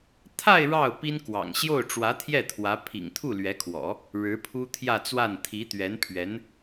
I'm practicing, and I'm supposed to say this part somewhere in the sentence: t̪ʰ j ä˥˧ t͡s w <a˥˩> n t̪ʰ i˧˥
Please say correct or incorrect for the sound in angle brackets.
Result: correct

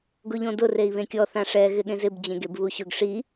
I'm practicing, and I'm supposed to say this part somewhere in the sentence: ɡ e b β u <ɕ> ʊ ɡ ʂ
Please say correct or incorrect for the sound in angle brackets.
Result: correct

